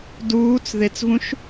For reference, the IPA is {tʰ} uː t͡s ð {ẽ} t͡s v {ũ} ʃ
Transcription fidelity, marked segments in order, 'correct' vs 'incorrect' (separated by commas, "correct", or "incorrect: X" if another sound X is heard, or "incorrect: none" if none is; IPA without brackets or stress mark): incorrect: d, incorrect: e, correct